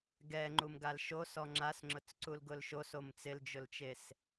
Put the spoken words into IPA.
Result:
ɡɛ ŋ͡ǃumɡalʃo sɔŋ͡ǁasŋ͡ǁʊt͡sǀul ɡʊlʃos omt͡sɪld͡ʒʊlt͡ʃes

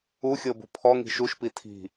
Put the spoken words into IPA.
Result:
uxʲɤbṳ pʰɔŋi̤ ʃuʃpi tʰi̤

